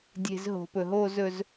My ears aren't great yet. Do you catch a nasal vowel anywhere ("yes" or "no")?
no